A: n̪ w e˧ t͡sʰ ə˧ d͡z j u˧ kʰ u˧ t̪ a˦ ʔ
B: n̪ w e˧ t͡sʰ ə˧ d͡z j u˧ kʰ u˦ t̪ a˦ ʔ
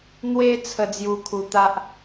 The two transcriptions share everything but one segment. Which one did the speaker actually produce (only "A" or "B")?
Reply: A